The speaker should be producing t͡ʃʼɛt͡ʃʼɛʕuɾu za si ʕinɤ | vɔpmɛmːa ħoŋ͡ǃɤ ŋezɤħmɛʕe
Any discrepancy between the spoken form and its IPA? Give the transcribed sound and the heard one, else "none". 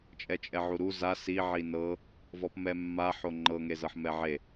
none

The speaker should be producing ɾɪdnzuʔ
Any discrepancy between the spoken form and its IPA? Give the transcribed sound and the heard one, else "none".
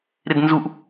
none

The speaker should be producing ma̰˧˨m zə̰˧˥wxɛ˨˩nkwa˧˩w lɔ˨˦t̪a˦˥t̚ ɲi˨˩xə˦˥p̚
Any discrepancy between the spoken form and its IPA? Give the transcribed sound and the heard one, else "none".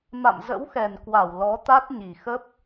none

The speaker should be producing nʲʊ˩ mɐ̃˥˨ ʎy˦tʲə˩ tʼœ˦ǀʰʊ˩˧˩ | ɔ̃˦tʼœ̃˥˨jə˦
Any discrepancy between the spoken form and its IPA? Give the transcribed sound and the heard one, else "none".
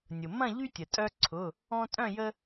none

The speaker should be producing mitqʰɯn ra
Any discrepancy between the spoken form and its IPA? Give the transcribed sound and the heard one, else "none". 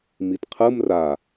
n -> m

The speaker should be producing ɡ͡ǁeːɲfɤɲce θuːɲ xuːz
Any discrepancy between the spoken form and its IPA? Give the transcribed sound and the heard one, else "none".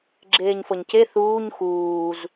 none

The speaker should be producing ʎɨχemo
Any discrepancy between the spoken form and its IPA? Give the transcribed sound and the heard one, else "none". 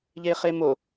ɨ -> e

